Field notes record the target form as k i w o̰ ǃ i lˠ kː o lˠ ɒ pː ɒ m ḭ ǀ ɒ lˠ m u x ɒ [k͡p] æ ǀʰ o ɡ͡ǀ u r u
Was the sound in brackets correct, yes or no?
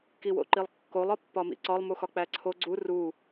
yes